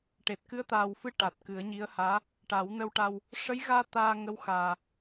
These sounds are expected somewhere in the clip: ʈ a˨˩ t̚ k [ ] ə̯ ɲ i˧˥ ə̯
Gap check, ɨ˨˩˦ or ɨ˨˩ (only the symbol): ɨ˨˩˦